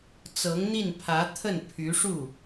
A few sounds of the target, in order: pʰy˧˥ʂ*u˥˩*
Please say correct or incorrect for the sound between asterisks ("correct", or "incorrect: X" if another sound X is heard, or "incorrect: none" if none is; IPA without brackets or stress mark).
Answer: correct